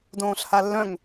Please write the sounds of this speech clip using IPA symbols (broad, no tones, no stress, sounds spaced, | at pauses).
d õː ɬ h a lː œ̃ ŋ